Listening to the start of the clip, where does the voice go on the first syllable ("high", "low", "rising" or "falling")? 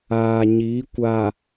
low